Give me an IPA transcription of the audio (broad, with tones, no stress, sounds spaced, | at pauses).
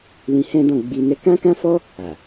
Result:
l ĩ˧ h ɛ̃˦ d ɔ̃˦˨ ɡ͡b i˧ n ɛ˦ k ã˦ k ã˦ f ɔ˦ | a˨